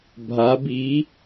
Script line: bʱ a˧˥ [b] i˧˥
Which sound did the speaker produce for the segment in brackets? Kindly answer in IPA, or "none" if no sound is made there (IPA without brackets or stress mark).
b